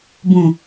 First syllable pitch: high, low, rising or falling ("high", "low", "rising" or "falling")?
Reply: low